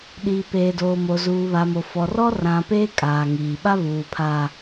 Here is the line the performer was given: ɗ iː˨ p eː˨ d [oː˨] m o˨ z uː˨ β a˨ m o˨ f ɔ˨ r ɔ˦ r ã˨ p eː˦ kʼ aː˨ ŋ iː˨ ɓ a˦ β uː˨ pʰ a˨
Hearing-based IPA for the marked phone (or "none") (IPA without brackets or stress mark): oː˨